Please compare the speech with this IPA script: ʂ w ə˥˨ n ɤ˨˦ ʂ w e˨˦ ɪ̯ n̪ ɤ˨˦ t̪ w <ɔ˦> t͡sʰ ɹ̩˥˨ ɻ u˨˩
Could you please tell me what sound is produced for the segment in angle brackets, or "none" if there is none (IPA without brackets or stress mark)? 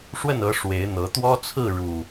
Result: ɔ˦